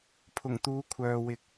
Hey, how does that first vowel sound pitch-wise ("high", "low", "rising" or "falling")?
low